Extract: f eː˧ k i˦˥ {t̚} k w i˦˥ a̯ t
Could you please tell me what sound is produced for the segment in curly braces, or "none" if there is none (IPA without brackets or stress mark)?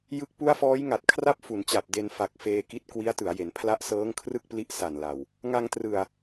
t̚